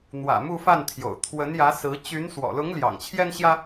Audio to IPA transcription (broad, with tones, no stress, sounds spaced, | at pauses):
n̪ w ä̰˨˩ m u˥˧ f a˥˩ n t̪ʰ j o̰˨˩ ʊ̯ t̪ʰ w ə˧˥ n j ä˧˥ s ɹ̩˧˥ t͡ɕ y˧˥ n s w ɔ̰˨˩ l ʊ˧˥ ŋ l j ɑ̰˨˩ ŋ t͡ɕʰ j ɛ˥ n ɕ j ä˥